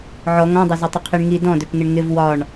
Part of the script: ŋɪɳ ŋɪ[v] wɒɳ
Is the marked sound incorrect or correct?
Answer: correct